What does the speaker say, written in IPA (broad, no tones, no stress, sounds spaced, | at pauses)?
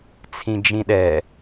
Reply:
t͡sʰ ĩ d͡ʒ ĩ ɗ ɛ